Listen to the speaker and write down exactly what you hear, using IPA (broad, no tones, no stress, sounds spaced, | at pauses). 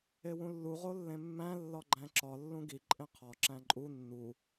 e w ũ lː u ʁ o lː ẽ mː æ̃ lː ɒ ɡ͡ǃ æ̃ ǁ ɒ lː ũ ɡ i ǃʼ ẽ qʰ ɒ ǁ æ̃ ǃʼ u nː u